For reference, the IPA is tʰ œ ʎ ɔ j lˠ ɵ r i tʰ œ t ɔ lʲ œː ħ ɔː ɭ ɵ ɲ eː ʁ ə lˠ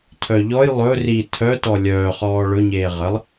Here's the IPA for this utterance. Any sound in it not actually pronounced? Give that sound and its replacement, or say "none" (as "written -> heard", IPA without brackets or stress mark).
ħ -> χ